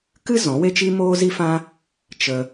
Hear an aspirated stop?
no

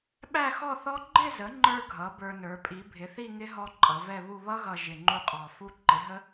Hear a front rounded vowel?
no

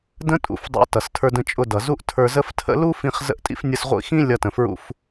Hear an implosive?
no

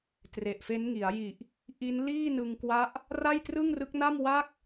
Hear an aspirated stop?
no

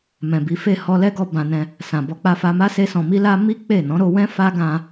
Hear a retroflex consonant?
no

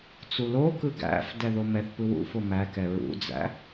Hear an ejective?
no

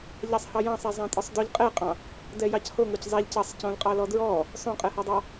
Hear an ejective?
yes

